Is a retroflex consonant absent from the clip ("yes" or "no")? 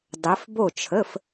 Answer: yes